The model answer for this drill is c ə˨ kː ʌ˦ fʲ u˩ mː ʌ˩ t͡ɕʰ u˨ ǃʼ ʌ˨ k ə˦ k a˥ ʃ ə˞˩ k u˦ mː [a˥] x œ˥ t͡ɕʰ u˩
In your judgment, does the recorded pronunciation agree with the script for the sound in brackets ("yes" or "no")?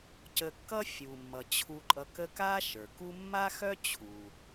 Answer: yes